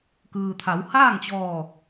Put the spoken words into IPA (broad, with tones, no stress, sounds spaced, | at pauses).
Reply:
k ɯː˩ t̪ʰ a˩˧ w h aː˥˨ ŋ t͡ɕ ɔː˧˩